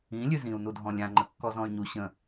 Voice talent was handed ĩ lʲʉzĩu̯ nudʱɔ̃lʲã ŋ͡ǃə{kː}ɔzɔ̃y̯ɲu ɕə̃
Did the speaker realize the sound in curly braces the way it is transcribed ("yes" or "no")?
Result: yes